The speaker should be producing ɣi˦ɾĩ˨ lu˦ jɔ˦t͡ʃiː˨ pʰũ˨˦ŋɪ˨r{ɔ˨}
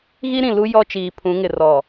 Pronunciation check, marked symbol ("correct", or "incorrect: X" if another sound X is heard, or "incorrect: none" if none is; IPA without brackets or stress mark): correct